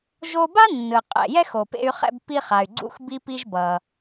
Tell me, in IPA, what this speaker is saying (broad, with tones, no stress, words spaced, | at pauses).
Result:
ʒo˧ ba˥nːɯ˩ qʼɛ̰˩ jɛ˥xo˩pḛ˧y̯χɛ̰˧b pi˧χa˩y̯ɡ͡ǀṵ˧xbi˧ pi˧ʒbʌ˩